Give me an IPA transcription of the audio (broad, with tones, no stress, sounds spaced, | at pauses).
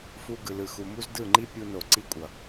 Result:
f u˦ ɡ ɯ˨ l ɯ˨ x u˨ m u˦ z d ɯ˦˨ ŋ͡ǃ i˦ pʲ u˧ n o˨ ǀ i˦ kʷʼ ʌ˨